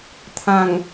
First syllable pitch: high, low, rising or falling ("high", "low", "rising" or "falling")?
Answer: low